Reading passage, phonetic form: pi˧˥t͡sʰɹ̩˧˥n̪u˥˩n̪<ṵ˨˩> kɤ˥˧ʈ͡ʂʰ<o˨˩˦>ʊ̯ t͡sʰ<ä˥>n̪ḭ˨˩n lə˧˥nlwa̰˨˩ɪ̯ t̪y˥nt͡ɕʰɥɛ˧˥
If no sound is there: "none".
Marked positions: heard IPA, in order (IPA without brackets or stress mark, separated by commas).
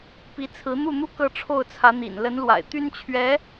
u˥, o˥˩, ä˧˥